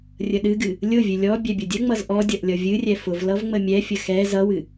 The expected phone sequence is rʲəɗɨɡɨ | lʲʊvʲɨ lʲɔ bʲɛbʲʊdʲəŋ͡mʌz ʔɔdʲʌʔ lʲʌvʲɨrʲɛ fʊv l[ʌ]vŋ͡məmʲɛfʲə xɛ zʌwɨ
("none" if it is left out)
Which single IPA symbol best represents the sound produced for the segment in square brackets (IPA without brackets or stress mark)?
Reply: ʌ